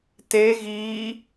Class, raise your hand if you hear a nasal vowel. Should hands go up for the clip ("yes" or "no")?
no